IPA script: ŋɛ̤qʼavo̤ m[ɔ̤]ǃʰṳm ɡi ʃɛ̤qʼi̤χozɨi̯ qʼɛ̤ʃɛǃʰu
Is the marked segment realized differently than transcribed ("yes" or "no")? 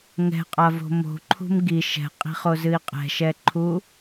yes